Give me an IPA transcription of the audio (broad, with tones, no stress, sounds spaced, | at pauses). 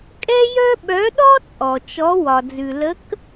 kʼ ɛ˥ j œ˥ ɓ œ˨˥ ɗ ɔ˥ t͡sʼ ɔ˩ t͡ʃ ɔ˨˥ w ɒ˩ d͡z ʉ˩ l ə˨˥ k